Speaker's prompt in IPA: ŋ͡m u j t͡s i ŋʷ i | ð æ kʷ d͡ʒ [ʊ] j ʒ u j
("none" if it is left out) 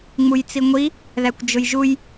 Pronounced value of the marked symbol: ʊ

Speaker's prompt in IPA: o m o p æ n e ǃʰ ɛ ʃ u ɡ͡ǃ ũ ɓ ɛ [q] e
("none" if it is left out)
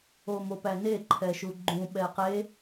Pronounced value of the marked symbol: q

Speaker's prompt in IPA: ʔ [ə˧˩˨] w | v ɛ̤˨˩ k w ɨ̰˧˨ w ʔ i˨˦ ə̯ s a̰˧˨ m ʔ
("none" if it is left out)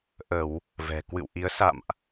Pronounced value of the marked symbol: ə˧˩˨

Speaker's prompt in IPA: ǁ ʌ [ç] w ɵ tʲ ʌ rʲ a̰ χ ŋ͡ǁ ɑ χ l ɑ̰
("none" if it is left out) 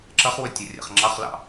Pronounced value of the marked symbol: χ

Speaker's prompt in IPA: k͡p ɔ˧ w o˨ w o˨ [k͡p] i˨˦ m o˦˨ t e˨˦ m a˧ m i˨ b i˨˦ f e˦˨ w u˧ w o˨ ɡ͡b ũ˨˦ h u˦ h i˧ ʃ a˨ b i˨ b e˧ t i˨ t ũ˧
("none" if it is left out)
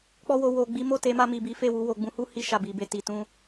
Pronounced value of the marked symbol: ɡ͡b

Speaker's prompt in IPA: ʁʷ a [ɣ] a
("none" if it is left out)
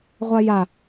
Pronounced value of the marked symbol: j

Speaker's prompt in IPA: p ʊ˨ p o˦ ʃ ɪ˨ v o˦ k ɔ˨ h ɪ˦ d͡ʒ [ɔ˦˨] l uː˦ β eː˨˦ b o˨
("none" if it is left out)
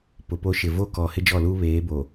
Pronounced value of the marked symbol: ɔ˦˨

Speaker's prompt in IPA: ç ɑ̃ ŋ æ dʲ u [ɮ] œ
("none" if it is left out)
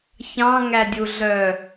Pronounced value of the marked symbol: ɮ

